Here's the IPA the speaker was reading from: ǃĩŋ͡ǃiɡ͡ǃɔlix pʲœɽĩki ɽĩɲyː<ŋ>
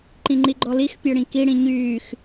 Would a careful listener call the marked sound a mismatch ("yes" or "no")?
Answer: yes